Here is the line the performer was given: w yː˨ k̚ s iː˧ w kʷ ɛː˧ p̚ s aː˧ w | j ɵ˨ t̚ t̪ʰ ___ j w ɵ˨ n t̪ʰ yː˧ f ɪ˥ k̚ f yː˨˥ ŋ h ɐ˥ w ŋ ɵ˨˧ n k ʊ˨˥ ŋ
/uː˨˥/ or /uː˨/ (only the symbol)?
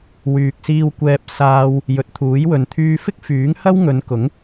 uː˨˥